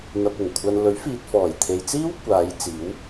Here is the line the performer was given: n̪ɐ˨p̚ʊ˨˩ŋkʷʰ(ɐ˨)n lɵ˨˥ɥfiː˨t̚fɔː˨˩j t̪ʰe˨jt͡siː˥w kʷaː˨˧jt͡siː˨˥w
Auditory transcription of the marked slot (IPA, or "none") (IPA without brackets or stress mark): ɐ˨